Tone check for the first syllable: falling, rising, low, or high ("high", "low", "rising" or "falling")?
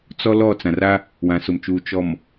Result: high